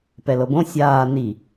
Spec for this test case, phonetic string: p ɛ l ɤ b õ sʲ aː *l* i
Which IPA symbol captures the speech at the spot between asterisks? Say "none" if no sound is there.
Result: n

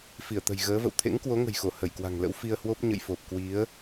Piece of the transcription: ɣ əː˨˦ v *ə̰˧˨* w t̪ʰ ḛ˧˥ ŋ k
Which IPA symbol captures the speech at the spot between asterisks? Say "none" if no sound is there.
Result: ə̰˧˨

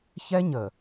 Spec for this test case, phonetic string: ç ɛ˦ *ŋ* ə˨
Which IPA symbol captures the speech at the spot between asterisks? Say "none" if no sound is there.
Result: ɲ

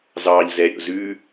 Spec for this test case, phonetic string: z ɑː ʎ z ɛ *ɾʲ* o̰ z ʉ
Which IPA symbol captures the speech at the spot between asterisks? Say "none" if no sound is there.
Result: ɾʲ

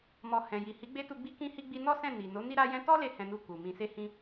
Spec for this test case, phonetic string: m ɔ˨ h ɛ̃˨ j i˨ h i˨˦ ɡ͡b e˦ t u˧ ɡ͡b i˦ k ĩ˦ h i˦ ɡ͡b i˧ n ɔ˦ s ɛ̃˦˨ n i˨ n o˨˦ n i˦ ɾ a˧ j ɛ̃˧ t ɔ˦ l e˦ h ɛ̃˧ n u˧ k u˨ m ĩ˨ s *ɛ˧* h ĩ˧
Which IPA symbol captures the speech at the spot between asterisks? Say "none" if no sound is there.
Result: e˧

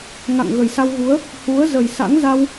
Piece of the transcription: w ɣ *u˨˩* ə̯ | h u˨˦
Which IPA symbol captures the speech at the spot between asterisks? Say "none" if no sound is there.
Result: u˨˦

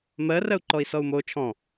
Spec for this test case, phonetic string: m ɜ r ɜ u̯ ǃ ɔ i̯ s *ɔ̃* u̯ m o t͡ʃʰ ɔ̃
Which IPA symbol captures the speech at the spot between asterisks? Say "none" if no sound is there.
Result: ɔ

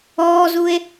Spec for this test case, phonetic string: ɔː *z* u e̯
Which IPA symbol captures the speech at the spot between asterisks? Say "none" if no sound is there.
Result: z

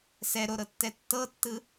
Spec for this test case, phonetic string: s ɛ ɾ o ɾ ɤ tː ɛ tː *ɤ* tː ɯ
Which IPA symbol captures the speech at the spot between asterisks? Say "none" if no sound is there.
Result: ɤ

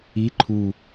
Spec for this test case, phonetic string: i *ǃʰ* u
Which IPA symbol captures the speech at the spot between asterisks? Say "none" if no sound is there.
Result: ǃʰ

